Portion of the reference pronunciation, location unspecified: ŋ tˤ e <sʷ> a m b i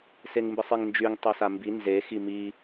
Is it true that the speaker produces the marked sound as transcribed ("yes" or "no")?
no